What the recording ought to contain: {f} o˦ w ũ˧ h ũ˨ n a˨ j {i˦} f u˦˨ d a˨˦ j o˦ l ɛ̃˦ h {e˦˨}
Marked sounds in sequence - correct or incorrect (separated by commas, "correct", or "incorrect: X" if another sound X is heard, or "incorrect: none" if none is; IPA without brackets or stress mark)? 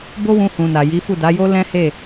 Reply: incorrect: b, incorrect: i˨˦, correct